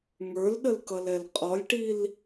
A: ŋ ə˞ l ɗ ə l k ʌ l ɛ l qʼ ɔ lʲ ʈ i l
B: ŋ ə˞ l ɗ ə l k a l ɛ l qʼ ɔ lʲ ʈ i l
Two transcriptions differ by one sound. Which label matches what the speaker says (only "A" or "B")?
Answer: A